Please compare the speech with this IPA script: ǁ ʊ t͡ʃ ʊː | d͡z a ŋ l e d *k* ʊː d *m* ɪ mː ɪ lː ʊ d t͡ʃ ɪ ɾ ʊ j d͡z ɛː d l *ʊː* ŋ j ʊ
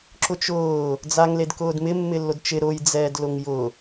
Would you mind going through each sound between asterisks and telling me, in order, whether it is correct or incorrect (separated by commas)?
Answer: correct, correct, incorrect